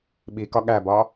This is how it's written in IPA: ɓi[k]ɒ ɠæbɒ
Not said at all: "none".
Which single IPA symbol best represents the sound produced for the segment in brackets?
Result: k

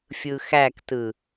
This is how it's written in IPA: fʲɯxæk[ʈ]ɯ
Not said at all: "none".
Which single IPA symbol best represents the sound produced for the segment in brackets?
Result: t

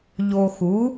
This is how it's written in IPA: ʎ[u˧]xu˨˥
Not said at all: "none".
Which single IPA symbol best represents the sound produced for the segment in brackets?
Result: o˧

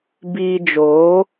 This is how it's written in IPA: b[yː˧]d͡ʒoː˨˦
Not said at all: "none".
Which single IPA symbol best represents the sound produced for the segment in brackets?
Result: iː˧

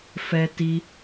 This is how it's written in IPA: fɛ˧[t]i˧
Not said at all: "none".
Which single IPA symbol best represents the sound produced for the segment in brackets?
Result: t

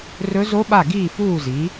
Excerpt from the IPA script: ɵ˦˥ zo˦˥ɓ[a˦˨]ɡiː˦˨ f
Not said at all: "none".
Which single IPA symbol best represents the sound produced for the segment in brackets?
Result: a˦˨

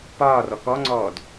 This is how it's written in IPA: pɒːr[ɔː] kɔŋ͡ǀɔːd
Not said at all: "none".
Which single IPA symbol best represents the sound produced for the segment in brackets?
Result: ɔ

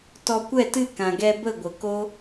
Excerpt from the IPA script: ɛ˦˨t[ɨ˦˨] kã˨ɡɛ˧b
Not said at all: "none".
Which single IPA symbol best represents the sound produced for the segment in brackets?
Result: ɨ˦˨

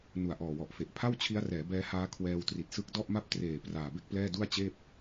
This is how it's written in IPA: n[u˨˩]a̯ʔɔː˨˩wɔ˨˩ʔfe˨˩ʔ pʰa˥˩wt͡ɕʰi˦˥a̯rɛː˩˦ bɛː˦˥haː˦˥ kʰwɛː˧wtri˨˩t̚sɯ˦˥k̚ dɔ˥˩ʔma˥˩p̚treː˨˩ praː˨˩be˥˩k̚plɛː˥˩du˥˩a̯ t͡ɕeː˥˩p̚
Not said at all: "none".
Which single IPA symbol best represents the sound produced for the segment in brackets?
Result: u˨˩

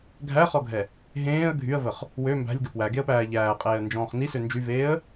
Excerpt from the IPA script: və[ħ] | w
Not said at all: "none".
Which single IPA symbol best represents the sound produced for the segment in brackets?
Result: χ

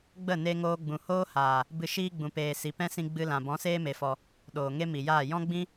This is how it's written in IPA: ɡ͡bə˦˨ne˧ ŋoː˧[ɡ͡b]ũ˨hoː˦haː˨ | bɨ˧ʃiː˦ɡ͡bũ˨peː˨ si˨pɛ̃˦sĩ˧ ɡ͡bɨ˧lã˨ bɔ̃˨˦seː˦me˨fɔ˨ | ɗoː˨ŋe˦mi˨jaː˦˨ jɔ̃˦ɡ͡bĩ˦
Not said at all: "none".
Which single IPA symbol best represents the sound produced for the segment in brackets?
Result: ɡ͡b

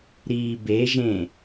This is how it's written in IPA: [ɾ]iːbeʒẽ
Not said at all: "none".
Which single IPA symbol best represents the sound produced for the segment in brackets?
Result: ɾ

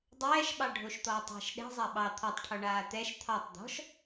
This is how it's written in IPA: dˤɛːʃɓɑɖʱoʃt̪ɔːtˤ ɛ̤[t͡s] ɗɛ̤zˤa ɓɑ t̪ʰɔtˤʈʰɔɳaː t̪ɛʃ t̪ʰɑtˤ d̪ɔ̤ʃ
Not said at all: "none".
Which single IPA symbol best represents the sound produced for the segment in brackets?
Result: ʃ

